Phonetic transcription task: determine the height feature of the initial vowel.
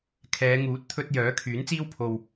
mid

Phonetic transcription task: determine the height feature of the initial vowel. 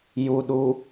high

